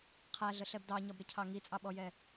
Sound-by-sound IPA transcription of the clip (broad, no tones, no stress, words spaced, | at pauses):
qʰæɮəɬɛb dɑɲɒbɾɪcʰɑ ŋit͡sʼɑɓɔjɛ